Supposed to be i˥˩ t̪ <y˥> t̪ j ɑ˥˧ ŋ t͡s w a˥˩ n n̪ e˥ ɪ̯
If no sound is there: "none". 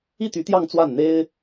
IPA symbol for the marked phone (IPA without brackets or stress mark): y˧˥